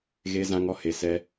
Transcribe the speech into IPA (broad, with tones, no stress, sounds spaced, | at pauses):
ɣ e˦ z ã˦ ŋ ɔ˦ h e˧ s ɛ˦